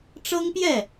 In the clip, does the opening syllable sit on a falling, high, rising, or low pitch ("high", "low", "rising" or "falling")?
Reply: high